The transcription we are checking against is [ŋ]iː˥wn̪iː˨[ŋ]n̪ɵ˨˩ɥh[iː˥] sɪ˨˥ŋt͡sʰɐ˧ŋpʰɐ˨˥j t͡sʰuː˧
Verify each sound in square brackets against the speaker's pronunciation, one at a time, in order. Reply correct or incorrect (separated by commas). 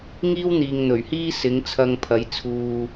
correct, correct, correct